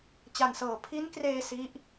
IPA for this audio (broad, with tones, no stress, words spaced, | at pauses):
t͡ɕa˨˩nsɤː˨˩ pʰi˦˥nkreː˧ si˦˥ʔ